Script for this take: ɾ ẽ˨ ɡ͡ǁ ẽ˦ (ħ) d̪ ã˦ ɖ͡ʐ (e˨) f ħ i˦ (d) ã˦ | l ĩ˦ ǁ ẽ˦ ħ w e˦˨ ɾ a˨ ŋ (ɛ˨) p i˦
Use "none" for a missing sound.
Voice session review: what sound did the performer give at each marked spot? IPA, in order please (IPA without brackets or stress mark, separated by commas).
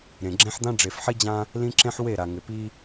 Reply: ħ, e˨, d͡ʑ, ɪ˨